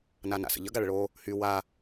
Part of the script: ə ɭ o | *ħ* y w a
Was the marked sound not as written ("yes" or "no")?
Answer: yes